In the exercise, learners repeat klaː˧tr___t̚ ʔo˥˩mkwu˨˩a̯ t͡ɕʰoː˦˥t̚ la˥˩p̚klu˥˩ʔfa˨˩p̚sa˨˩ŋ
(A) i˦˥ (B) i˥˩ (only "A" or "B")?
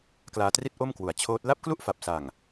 B